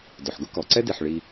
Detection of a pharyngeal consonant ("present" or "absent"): present